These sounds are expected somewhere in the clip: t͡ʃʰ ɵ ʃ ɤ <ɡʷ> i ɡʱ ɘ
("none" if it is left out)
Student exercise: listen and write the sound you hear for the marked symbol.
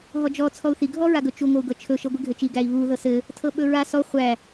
ɡʷ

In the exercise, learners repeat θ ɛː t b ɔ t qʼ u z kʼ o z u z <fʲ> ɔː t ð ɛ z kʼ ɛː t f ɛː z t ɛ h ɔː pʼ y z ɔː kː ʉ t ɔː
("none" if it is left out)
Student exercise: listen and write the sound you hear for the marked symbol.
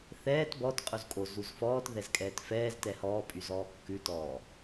f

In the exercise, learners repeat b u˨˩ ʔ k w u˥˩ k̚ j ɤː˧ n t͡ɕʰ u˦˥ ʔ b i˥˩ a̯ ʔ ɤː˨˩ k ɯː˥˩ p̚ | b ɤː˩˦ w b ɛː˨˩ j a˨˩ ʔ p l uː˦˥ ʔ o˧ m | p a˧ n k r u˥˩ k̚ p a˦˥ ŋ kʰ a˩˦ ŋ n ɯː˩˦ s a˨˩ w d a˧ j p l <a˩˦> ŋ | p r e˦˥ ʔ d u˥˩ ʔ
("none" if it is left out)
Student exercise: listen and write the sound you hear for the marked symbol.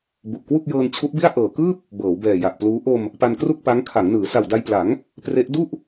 a˩˦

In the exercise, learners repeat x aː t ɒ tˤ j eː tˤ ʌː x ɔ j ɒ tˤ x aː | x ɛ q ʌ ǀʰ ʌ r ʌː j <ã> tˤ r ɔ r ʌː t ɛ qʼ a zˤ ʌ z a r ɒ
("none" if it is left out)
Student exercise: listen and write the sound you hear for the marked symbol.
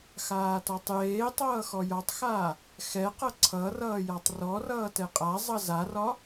a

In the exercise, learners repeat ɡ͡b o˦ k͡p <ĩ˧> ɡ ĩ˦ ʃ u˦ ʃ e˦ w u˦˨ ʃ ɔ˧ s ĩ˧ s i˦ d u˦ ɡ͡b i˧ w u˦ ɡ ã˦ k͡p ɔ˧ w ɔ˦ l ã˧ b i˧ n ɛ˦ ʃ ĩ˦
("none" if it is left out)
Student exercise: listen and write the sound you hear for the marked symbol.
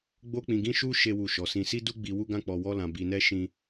ĩ˧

